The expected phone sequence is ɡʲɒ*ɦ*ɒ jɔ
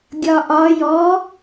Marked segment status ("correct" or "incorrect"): incorrect